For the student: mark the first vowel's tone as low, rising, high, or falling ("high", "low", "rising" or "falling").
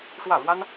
falling